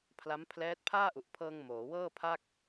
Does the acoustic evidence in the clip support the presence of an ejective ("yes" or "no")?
no